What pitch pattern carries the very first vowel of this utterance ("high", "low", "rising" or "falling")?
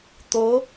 rising